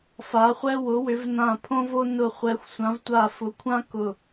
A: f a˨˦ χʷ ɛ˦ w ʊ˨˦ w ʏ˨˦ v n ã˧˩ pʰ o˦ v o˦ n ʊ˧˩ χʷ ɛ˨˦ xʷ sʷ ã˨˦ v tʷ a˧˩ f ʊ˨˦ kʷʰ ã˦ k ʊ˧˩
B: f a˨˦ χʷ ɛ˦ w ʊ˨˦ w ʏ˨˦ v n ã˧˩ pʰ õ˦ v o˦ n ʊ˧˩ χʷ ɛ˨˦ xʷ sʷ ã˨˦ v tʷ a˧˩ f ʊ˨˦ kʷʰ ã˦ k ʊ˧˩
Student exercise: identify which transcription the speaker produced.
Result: B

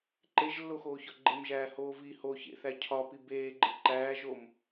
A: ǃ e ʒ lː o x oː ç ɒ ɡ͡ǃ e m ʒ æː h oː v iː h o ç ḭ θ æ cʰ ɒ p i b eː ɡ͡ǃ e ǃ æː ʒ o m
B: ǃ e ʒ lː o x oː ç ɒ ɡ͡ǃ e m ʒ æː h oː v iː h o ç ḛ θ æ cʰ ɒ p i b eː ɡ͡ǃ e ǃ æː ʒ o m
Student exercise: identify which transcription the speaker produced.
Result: B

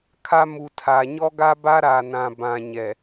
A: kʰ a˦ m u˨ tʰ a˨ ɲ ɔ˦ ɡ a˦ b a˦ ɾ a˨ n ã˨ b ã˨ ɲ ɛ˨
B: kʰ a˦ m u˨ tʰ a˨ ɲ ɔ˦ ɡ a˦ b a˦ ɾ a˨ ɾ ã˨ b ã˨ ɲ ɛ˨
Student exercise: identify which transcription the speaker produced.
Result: A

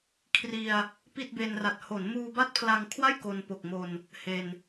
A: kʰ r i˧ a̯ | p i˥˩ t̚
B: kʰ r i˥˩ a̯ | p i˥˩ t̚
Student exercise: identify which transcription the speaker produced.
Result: A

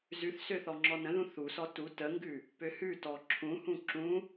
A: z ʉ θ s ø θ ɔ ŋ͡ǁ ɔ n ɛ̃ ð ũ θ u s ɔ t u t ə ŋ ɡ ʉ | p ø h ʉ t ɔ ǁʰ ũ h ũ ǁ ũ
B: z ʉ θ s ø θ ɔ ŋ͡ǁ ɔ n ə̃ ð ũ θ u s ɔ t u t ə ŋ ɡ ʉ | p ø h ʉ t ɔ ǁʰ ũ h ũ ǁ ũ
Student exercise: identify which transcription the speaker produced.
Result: B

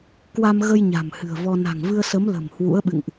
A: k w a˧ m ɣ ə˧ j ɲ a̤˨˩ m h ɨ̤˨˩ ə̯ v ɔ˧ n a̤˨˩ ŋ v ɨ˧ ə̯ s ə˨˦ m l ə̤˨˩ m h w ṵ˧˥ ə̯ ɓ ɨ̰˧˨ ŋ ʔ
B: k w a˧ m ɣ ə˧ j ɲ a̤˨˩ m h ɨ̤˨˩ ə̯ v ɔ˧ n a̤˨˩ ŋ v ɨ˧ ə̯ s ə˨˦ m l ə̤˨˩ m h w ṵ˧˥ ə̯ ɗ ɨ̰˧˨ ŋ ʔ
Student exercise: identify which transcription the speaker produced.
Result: A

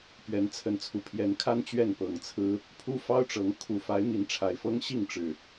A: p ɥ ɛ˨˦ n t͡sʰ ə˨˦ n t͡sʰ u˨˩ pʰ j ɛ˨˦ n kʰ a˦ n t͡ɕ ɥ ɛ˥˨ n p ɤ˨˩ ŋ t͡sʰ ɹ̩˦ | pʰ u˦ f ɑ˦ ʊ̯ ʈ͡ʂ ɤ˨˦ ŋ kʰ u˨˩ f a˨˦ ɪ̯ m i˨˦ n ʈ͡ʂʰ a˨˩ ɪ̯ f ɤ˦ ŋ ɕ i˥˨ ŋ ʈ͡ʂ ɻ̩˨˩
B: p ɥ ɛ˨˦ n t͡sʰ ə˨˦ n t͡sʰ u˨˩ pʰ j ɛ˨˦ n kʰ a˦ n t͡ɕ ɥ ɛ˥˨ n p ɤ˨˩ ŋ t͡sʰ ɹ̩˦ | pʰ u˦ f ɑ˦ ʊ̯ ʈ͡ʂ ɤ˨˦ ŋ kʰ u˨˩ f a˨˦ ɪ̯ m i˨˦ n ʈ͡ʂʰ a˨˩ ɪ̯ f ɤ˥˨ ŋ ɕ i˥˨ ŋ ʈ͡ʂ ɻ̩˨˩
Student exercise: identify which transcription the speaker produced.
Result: A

